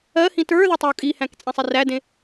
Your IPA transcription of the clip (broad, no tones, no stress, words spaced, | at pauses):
ɜhĩ tə˞ðʏ tˤiu̯kʼihæ̃k t͡sʼẽsˤerædẽ